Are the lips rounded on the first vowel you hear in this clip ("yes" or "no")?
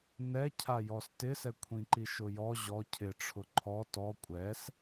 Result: no